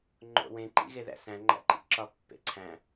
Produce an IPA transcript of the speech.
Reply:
ŋ͡ǃo̰wẽ ǃḭɣeðæ̰sæ̃ ŋ͡ǃæ̰ǃḭǁɒ pːḛǀʰæ̃

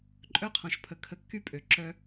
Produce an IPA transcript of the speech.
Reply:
ǃʼœ˦qʰɔ̃˨ʃpʰə˨ kʰə˨kːy˦ pʼø˨ǁœ˦

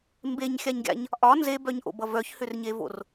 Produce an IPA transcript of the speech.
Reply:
mbeɲxʲaɲɡʲa̰ɲ | ʔɒ nzebœɲʔo̰bʌ vœçhʏrɲevo̰r

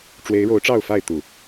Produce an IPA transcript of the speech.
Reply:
ʈ͡ʂwe˨˦ɪ̯ɻo˨˦ʊ̯ ʈ͡ʂɑ˥˨ʊ̯fa˥˨ɪ̯ t̪u˨˩

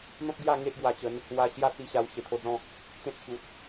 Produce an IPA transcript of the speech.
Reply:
n̪ɔ̃˦p̚ ɡja˥˧ ŋe˦ʔɡwa˧t͡ɕə˨˦n | wa˧ ɕja˥˧t͡si˧ ɕa˧wɕe˨˩t̪ʰo˧d͡zɔ̃˥˧ | t̪ẽ˦t̚ ɕu˨t̚

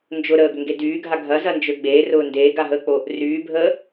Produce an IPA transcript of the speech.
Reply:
nd͡ʒʊ ɾəːɡʏŋɡe dyːɡʱa ɡʱɐzɐnd͡ʒø ɡ͡beːrʊː ndeːɡaɦəːk͡po | ryːbʱəː

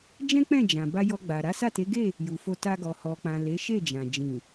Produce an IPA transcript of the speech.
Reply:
d͡ʒɛ̃˦k͡pɛ̃˦˨ d͡ʒã˨ba˧ jɔ˧ɡ͡ba˨ ɾa˨˦sa˦˨te˨˦ɡe˦˨ | ju˨fo˧ta˧ɡɔ˨ hɔ˨k͡pã˨ le˨˦ʃe˦˨d͡ʒã˨ d͡ʒĩ˨

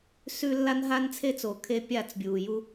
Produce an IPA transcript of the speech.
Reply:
sʉ˦ lːa˦nɦa˦nt͡sʰe˦t͡soː˨ kʰe˦pʲa˦˨t͡sbʲuː˨ju˦

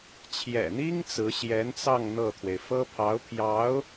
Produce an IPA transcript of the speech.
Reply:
t͡ɕʰjɛ̰˨˩n̪i˥ŋ t͡sɹ̩˧˥ɕjɛ˧˥nt͡sɑ˥˧ŋ n̪ɤ˥˩t̪ʰwe˩ɪ̯ fɤ˥pʰɑ˧˥ʊ̯pʰjɑ˧˥ʊ̯

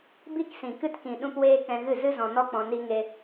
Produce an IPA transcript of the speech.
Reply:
bi˧ksĩ˨kɨ˧tkĩ˨ ɗũ˦pweː˦ kɛ̃˧ɣɨ˦˨zɨ˦zɔ̃˧ nɔ˦k͡pɔ̃˧ ni˦ŋe˦

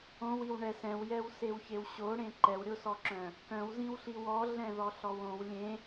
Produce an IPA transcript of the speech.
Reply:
õwiw ɳɛsɛ̃wjɛw sewçewɕoɽẽ ǃɛwɾʲosɔǁœ̃ | kœ̃wzĩwɬiw ɔ ɮɛ̃ðɔɬɔwõw lʲẽ

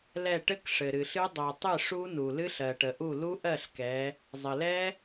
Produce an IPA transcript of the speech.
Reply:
lɛ˧˩ʈɘ˦˥k ʂɘ˩ɾɨ˩ɬɨ˦˥ dˤɜ˩ tˤɨ˥˩ʂu˦˥nu˩lɨ˦˥ɬ ɜ˩ʈə˩ʔu˥˩ lu˦˥ʔɜ˥˩ɬkɛ˩˧ | zˤɘ˩lɛ˦˥

